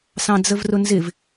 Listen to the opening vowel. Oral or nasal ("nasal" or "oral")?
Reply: nasal